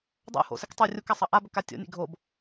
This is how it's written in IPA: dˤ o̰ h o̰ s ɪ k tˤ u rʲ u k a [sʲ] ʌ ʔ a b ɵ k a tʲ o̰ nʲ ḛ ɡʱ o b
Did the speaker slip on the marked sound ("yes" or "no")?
yes